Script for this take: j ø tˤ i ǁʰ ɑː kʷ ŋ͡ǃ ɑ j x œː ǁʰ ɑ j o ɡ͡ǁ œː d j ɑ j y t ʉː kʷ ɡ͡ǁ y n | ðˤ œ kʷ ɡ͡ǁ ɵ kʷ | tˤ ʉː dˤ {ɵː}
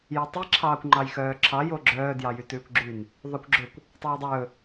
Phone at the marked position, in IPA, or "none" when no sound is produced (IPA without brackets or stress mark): ɵː